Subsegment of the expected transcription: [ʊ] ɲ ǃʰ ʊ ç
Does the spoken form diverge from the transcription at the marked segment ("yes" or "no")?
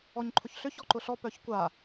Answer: yes